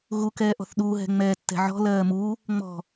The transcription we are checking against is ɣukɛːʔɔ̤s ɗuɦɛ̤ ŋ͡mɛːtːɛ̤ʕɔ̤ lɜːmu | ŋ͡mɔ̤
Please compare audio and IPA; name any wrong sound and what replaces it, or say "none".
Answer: s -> θ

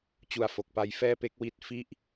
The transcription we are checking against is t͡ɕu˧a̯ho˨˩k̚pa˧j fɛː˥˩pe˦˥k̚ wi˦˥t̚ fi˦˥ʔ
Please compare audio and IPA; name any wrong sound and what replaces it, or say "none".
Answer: h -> f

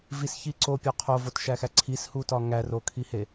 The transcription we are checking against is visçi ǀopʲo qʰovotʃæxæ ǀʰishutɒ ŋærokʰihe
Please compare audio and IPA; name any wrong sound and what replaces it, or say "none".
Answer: none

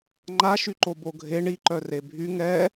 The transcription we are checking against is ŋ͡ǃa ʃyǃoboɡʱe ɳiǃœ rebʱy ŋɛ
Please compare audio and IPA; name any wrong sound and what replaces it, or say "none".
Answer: none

